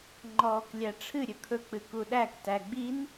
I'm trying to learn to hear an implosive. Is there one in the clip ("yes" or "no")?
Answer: yes